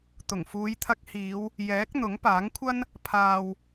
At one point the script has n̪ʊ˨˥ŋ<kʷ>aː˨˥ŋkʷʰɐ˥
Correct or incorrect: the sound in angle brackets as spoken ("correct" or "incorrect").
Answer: incorrect